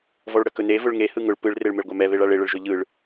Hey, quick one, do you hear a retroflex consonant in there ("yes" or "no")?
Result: yes